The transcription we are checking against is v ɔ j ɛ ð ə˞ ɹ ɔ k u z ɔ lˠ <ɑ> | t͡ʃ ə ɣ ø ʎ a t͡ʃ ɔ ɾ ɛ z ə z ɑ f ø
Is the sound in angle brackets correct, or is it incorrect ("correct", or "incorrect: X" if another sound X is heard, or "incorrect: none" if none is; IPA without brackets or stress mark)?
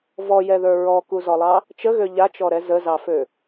correct